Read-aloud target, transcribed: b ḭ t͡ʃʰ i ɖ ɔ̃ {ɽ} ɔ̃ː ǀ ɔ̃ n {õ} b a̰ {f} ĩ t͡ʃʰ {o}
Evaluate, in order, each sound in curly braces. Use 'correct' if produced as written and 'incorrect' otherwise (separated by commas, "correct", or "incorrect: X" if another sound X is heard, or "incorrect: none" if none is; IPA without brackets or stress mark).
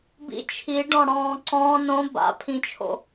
correct, correct, incorrect: pʰ, incorrect: o̰